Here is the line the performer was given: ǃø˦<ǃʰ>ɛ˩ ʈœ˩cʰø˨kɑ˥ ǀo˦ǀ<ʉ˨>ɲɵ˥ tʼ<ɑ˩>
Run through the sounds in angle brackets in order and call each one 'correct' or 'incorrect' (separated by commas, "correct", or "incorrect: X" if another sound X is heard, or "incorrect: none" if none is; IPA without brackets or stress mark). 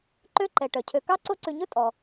incorrect: ǃ, correct, incorrect: ɔ˩